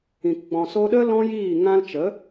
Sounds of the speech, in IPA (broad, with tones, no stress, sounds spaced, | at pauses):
ĩ˨ k ɡ͡b ɔ̃˨ s o˧ ɗ ə˦ l ɔ̃˦ j iː˦˨ ŋ ã˦ l t͡ʃ ə˨˦